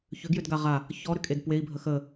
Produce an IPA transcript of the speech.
çʏɡjʏdɡa ʁa | çɔɾʏkʼed pwei̯bʱə xə

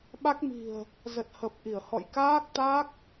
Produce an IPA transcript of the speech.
ɓa˦˥k̚mi̤˨˩ə̯ | zə˨˩t̚hə˨˩p̚ʔi˧˩ə̯hɔ̰˧˨j kaː˦˥k̚t̪a˦˥k̚

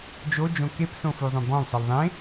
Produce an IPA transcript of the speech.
d͡ʒod͡ʒõ kepsõfuzˤõ bɔ̃lsˤil ðˤẽ

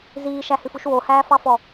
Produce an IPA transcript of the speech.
ziːʃæhʉfuʃ wohæːfɑfɔ

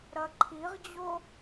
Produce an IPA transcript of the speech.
ɾɐǃʰiʁd͡ʑo

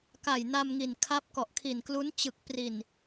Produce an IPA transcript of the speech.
ka˨˩jna˧mŋi˨˩n kʰa˦˥p̚kɔ˨˩ʔkʰi˨˩n klu˦˥nt͡ɕɯ˨˩k̚pri˨˩n

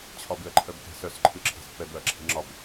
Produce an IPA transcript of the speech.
t͡ɕʰɒbɨɐ̯ǃʰœb kɛ̤sœsǃʰɨ ǁʰe̤spːɛbœɐ̯ ǁʰi̤ŋ͡ǁɒb

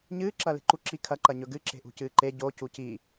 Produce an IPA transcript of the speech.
ɲɨː ǁɐːle̤ǃu ǁi kʰɐ ǃɐɲɵɡɨ ǁe̤ʔṳcɨːǃe ɟo cuci

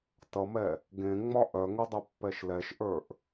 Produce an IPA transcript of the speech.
tʌmɛ | ɡẽŋ͡mɒ ʔœŋodˤœpːɛʃ lɛʃʔə˞ʔ

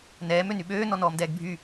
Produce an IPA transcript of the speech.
nɛːm ønyɓøː nɔnɔːmdɛːɡbʱy

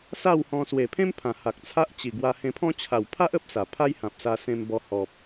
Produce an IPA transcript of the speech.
sa˥˧whɔ̃˧ swe˨˩pʰẽ˦mpʰã˨˩ ha˨k̚ t͡sʰa˦ʔt͡ɕi˨˩ ɡwa˧hẽ˧pʰɔ̃˦ t͡ɕʰa˨˩wpʰa˦ʔ ə˦p̚sa˨˩ pʰa˦jhã˨p̚sa˧ sẽ˧mbɔ˧ hɔ˨p̚

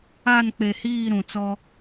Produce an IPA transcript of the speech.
a˦˨n k͡pe˨hiː˦˨ ɾũ˨t͡sɔ˦

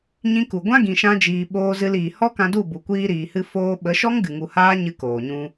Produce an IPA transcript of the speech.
ɲĩ˧ku˨ ɡʷã˦ɡĩ˨ ʃã˦d͡ʒiː˧ ɓoː˧zɨ˧liː˨ hɔ˦kã˧du˦˨ bu˨kʷiː˧ɾiː˨hɨ˧ foː˧ ɓə˨˦ʃɔ˦ŋɡɨ˨ŋu˨ haː˦ɲɨ˧koː˨ɲũ˧

